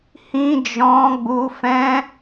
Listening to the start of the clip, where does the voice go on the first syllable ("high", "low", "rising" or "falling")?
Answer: high